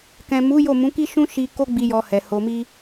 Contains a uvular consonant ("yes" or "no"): no